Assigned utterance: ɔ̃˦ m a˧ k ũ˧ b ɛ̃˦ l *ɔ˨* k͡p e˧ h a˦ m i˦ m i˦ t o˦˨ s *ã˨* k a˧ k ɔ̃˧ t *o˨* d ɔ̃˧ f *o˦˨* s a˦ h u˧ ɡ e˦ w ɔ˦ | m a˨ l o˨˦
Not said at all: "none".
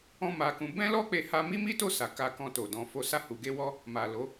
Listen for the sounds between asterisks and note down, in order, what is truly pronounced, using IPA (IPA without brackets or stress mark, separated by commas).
ɔ˦, a˨, o˨, o˧